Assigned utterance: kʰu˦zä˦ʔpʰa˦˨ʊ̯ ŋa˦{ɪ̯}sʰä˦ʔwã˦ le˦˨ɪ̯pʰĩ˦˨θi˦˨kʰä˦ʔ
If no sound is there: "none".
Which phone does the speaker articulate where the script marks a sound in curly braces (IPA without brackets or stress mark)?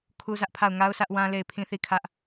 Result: ʊ̯